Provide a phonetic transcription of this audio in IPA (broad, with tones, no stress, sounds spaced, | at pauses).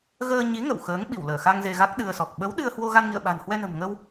ɣ əː˧ ɲ i˨˦ ŋ ə̰˧˨ w x əː˨˦ ŋ ɓ i˧˩ w l əː˧˩ x a˧ ŋ z e˧ ɣ a˦˥ k̚ ɗ ɨ˧ ə̯ s ɔ˨˩ k̚ ɓ ə˨˦ w ɗ ɨ˧ ə̯ h w o˧ ɣ a˧ n ŋ ḭ˧˨ ə̯ ɓ a̤˨˩ n h w ɛ˧ n ə̤˨˩ m ŋ ə˧ w